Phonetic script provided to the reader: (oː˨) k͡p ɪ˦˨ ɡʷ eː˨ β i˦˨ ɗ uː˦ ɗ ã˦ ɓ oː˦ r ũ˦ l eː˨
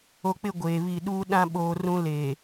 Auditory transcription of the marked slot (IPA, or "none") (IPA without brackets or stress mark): o˨